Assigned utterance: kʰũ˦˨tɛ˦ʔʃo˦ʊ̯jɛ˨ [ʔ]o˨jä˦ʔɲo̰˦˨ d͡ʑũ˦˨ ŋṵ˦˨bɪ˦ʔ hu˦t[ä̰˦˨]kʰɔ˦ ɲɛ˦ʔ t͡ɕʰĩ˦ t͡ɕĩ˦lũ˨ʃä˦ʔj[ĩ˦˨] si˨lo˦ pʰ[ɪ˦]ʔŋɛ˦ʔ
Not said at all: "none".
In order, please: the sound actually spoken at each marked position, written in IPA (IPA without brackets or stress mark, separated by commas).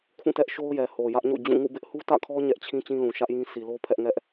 h, ä̰˦˨, ĩ˦, ɛ˦